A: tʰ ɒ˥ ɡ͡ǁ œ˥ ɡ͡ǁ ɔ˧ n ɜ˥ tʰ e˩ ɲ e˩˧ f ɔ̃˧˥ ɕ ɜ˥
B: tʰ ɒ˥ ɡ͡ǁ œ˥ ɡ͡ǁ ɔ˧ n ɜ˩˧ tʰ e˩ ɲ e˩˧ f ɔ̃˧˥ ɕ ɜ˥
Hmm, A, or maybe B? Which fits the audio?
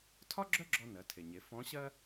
B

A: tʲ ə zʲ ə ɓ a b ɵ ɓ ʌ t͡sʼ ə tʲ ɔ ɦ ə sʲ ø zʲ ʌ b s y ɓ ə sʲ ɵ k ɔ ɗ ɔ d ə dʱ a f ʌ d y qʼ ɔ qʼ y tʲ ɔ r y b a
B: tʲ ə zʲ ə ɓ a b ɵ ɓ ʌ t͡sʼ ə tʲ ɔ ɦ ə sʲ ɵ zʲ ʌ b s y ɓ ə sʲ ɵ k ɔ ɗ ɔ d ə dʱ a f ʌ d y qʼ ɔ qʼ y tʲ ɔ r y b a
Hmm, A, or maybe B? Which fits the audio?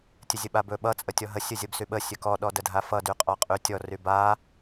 B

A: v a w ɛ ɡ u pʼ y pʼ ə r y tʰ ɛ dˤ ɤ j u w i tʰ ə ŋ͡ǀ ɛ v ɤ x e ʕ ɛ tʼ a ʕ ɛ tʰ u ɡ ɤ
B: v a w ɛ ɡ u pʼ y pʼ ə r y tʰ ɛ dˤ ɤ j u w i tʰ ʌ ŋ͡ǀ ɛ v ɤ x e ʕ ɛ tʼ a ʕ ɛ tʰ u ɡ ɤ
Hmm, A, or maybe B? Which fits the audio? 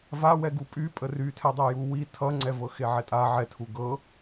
B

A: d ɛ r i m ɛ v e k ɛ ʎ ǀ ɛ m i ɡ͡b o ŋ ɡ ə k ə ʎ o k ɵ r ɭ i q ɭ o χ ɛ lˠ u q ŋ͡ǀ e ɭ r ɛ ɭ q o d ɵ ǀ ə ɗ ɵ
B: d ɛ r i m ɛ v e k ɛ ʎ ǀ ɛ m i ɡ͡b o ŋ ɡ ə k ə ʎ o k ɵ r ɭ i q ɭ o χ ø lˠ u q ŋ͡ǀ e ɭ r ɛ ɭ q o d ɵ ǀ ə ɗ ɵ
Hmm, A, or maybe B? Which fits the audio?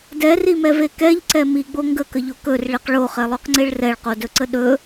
A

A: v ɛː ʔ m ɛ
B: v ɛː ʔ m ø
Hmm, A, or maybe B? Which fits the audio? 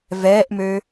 B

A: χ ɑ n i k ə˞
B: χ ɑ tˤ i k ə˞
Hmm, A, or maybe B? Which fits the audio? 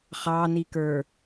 A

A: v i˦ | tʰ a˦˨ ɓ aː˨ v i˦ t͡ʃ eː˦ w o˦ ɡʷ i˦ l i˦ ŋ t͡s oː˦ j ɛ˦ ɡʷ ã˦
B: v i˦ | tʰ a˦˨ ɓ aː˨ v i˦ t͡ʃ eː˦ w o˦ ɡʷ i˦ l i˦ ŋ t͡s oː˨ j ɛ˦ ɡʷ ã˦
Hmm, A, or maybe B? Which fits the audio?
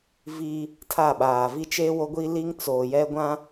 B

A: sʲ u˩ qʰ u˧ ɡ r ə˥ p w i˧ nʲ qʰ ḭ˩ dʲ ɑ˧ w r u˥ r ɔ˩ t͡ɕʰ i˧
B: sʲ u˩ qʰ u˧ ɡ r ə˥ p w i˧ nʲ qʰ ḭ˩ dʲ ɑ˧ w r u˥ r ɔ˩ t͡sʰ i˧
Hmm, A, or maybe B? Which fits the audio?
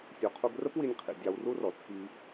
B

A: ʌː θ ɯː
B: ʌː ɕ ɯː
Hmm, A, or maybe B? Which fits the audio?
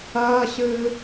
B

